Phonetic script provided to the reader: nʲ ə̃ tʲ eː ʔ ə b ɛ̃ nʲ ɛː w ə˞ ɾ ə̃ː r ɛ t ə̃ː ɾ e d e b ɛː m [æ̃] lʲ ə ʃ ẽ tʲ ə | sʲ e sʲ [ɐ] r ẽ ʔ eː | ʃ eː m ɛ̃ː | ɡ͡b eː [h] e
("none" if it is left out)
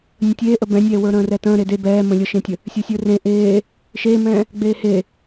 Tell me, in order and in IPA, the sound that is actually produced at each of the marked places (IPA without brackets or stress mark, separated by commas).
ə̃, ə˞, h